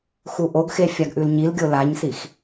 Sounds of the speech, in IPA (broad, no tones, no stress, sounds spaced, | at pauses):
x u ʔ o ɡ x e fʲ a ɡ ʔ ʉ l ɲ i l ɡʲ o l a ɲ s i x